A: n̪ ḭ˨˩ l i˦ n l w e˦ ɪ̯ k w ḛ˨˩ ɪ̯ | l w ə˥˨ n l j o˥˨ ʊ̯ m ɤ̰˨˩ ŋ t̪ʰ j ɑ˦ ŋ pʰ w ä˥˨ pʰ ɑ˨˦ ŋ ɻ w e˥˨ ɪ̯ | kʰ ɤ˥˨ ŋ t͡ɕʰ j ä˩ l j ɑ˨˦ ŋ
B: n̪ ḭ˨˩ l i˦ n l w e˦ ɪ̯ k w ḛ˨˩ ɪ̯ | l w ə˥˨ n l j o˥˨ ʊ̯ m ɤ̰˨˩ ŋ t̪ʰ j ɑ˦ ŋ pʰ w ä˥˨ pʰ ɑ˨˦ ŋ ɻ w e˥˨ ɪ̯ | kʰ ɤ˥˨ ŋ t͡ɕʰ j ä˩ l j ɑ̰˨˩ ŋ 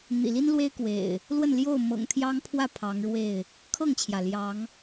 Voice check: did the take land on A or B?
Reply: A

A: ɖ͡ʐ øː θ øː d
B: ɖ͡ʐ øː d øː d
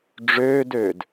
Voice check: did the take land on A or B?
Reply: B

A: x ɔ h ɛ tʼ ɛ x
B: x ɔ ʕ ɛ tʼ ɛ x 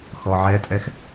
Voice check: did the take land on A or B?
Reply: B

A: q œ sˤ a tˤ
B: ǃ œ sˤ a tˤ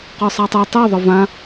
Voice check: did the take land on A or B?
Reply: A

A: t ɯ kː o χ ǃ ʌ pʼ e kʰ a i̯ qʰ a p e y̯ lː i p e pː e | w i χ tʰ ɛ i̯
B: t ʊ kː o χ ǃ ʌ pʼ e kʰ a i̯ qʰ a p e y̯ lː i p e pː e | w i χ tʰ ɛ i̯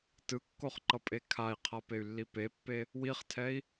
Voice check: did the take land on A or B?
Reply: A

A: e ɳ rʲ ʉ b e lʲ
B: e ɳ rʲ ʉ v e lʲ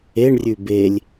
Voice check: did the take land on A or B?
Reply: A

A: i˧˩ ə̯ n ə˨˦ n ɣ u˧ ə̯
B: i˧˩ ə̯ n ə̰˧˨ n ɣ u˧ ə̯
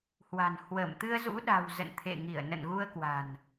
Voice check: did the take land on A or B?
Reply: B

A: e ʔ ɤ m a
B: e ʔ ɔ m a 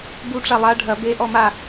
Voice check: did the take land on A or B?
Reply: B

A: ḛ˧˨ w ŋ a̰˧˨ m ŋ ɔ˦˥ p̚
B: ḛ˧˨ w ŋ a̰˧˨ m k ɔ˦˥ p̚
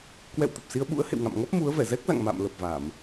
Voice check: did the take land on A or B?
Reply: A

